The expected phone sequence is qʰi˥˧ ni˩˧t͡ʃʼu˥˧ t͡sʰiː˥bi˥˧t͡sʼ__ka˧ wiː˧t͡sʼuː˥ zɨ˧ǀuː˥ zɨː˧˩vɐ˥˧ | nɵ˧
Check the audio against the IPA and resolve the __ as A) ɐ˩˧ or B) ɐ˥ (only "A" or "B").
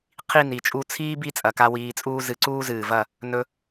A